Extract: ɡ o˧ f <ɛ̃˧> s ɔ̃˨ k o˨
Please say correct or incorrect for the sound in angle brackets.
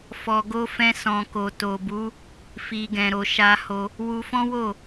correct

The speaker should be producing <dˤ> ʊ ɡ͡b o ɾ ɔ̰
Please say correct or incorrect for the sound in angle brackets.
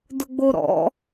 incorrect: d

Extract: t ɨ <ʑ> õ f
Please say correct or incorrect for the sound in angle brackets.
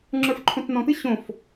incorrect: ɕ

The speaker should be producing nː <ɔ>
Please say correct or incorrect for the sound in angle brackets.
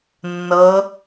incorrect: ɤ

